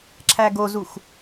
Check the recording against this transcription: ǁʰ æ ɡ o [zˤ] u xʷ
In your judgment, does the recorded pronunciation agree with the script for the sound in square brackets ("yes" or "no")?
no